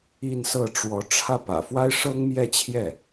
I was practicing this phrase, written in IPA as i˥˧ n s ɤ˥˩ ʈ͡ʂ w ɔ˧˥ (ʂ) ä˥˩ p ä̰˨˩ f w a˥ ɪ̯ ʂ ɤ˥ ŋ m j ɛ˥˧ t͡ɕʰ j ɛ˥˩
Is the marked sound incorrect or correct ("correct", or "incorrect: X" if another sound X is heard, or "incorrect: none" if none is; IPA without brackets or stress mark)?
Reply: incorrect: ʈ͡ʂʰ